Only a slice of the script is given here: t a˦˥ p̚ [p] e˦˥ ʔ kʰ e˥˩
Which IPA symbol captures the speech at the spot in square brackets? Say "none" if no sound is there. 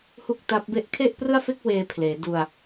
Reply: b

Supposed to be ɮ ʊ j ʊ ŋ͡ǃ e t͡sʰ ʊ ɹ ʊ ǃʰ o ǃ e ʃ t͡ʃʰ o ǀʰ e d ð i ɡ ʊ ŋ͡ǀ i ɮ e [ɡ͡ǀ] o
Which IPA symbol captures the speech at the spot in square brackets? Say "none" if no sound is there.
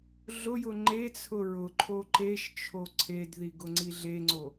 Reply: ŋ͡ǀ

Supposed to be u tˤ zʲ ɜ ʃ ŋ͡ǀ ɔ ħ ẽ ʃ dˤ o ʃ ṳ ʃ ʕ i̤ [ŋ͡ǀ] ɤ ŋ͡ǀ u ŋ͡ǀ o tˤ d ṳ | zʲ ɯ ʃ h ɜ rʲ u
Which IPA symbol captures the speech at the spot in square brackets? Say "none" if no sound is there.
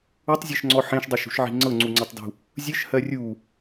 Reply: ŋ͡ǀ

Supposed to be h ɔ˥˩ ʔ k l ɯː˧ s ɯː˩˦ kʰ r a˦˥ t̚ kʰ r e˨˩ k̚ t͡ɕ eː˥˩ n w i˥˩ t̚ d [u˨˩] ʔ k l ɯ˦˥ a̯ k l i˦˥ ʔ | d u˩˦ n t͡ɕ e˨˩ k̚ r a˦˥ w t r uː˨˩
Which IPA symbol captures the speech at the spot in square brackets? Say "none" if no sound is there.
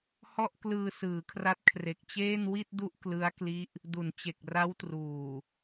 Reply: u˦˥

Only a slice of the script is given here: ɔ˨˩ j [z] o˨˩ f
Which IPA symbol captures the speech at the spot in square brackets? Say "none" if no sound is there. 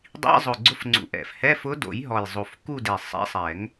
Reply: zˤ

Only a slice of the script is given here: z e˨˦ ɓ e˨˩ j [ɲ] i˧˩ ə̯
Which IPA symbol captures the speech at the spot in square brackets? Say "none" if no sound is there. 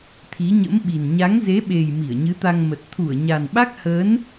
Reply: m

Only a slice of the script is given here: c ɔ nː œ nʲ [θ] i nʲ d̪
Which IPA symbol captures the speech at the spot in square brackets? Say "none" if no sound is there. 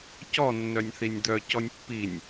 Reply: θ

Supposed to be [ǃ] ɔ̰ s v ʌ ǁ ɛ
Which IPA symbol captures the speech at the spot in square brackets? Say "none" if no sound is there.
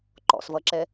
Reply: ǃ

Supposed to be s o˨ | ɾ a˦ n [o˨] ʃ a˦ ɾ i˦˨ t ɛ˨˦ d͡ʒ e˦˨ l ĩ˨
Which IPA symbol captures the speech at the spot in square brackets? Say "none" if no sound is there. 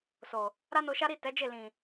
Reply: o˧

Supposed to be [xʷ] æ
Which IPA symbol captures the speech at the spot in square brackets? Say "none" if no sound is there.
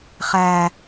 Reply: χ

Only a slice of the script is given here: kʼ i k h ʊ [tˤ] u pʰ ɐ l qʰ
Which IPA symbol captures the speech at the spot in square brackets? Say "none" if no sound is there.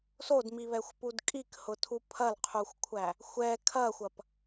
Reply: tʰ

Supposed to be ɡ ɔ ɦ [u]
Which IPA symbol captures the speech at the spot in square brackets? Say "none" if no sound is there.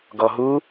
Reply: u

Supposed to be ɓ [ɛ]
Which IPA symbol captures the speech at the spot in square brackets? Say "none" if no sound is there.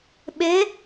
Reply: e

